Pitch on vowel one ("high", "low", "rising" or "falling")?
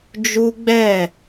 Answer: high